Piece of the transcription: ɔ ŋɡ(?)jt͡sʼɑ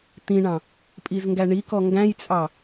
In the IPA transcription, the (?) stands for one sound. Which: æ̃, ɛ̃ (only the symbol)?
æ̃